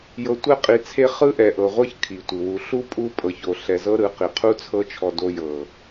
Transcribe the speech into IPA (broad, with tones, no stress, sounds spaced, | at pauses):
j ɤ˨ tʷ ɛ˧ qʼ i˨ t͡sʰ e˧ χ ɯ˦ ʔ ɛ˨ ʔ ɤ˨ ʁʷ ɤ˦ ç kʰ i˨ tʷ ɯ˨ w u˨ ɬ u˦ pʼ u˧ pʼ ɤ˨ ç o˨ ɬ ɛ˨ z ɤ˦ ɾ ɯ˨˦ q i˨ qʰ u˦ t͡sʰ ɤ˦ t͡ʃʰ ɔ˧ d o˧ j ɤ˨